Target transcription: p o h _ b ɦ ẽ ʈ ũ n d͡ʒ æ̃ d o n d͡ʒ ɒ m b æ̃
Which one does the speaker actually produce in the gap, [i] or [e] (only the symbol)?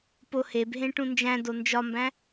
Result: e